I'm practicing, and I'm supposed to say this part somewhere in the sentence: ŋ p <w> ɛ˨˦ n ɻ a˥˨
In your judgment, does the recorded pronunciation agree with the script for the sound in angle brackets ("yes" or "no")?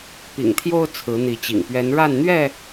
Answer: no